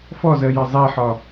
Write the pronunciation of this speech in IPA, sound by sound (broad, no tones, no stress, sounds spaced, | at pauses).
f ɔ z ɜ j ɪ zˤ i ħ ɒ